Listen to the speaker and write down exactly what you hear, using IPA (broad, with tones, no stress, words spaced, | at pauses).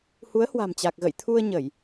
hu˨˦ə̯hwa̤˨˩mt͡ɕa˨˩k̚ɣə̰˧˨j t̪ʰu˧ə̯ɲə˧˩˨j